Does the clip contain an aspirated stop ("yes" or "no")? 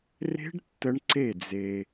no